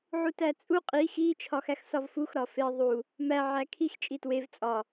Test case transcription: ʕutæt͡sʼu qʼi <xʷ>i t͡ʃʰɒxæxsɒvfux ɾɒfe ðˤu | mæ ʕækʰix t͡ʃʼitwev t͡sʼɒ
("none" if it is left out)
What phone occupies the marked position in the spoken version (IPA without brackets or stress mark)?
x